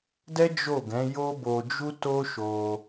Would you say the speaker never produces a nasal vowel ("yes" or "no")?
no